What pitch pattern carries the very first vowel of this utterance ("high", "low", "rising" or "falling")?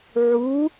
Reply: rising